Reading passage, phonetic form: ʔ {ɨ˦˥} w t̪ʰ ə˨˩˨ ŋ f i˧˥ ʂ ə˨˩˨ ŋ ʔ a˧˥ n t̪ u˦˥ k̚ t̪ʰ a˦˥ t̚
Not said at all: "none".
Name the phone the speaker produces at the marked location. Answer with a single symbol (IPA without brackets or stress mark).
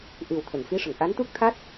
ɨ˨˩